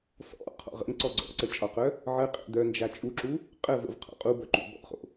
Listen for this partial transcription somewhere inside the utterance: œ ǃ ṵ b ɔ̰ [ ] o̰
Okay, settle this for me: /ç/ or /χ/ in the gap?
χ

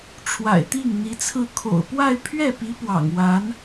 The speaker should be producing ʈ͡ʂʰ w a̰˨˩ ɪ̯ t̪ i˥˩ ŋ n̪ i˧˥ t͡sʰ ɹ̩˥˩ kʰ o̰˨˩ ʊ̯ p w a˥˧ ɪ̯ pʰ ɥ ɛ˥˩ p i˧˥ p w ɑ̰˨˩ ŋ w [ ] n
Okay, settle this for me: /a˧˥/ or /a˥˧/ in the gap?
a˧˥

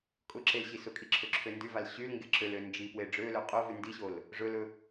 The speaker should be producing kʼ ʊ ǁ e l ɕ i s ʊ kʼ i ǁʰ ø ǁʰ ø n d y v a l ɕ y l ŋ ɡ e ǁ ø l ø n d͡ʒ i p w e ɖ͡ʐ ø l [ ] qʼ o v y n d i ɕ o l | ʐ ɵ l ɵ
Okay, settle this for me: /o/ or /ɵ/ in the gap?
ɵ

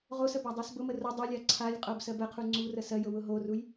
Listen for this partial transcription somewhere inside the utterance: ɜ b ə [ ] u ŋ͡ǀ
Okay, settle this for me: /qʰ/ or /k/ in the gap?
qʰ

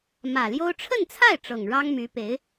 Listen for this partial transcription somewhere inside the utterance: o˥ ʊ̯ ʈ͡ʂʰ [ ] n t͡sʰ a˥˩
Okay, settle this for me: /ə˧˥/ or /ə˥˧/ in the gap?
ə˥˧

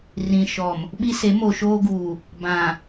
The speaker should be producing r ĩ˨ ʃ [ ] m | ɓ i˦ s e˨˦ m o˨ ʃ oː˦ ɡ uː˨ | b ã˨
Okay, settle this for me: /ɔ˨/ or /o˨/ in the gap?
ɔ˨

